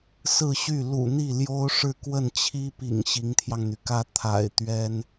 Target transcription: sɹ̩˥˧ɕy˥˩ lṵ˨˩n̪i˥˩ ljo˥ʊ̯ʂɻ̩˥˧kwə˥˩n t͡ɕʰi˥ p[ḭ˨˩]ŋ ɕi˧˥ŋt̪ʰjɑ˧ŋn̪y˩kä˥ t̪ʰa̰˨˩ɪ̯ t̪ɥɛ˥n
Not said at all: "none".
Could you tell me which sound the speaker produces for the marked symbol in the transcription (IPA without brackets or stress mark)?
ḭ˨˩